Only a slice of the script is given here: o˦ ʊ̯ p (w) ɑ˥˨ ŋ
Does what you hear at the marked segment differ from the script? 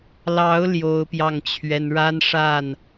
yes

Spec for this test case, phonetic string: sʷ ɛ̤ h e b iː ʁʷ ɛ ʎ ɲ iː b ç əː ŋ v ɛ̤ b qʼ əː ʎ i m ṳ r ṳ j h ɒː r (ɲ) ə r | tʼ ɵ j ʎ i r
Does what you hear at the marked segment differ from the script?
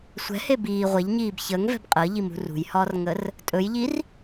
yes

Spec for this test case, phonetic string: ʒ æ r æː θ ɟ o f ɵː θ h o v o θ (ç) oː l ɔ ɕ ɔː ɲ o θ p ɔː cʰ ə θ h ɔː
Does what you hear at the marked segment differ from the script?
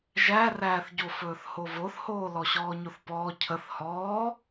yes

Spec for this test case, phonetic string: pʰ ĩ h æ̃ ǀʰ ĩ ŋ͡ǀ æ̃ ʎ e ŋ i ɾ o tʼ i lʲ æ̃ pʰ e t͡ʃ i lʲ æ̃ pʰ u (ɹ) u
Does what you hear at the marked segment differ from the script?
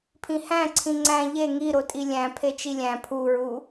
no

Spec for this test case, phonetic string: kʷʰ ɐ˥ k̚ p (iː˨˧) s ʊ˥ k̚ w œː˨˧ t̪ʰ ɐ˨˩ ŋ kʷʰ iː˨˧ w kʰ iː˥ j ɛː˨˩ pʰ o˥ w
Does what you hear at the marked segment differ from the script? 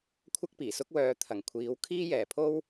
yes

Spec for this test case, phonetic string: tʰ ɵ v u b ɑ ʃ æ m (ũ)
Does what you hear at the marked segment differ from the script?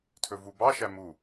yes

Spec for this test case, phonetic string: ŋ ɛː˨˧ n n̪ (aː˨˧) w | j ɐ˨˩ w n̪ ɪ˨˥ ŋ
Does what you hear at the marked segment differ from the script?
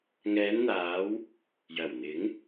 no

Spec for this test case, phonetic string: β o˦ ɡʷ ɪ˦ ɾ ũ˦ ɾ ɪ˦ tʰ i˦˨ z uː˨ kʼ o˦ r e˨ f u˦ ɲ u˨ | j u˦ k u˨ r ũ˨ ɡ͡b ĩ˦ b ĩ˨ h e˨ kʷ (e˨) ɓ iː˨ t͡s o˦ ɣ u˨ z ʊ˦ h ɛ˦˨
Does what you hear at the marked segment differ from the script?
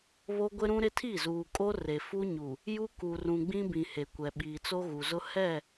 yes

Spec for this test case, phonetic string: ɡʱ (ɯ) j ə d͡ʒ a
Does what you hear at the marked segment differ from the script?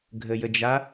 yes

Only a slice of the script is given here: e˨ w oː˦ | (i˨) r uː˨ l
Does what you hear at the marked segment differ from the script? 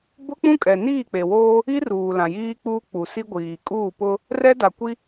yes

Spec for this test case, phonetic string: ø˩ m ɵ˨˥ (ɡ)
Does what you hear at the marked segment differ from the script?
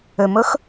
yes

